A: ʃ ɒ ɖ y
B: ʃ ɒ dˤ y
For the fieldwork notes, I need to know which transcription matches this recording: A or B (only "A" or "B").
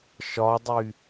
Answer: B